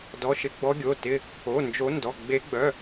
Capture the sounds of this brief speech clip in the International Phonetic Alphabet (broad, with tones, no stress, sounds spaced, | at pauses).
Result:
d ɔ˩˧˩ ʃ ɪ˨˦ ɡ͡b ɔ˨˦ ɡʲ o˩˧˩ t ɪ˩˧˩ | o˩˧˩ n d͡ʒ o˨˦ n d ɔ˩˧˩ ɡ͡b e˨˦ ɡ͡b œ˩˧˩